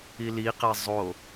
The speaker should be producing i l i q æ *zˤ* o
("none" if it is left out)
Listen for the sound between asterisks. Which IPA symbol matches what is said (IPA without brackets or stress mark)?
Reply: zˤ